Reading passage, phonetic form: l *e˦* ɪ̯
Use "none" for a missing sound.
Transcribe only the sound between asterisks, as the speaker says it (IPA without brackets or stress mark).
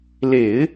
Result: e˨˩˦